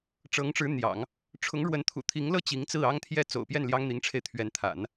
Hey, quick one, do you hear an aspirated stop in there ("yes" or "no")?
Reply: yes